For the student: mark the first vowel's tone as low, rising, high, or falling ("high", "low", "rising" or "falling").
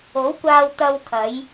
rising